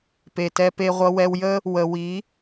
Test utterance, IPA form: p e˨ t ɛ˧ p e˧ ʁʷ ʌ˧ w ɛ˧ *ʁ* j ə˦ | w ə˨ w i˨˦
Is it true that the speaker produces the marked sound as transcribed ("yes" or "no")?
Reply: no